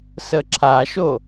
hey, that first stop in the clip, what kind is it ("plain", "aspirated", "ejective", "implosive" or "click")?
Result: click